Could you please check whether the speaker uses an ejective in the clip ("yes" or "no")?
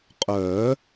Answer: yes